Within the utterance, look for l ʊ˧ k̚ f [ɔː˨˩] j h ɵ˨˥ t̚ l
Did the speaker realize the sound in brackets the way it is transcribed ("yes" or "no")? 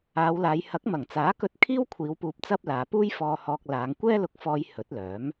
no